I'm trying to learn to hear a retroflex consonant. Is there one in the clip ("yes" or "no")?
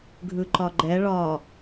yes